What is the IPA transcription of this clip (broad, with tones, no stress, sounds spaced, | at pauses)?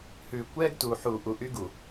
h ʉ˨ kʷ ɛ˦ ɡ t u˨ ħ uː˨ ʔ u˨ ʔ y˦ ɡ u˨